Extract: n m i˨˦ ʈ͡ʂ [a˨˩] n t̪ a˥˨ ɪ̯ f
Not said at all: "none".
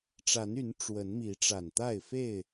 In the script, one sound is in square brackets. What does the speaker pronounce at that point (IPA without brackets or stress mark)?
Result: a˨˩